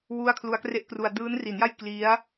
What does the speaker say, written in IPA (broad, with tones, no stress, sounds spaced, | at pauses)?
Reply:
w u˥˩ a̯ kʰ l u˦˥ a̯ k r e˥˩ ʔ k r u˧ a̯ d ɯː˦˥ n r i˩˦ n j a˥˩ j k l i˦˥ a̯